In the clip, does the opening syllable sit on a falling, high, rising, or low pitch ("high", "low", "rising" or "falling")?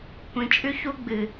low